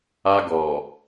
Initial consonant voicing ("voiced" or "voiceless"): voiced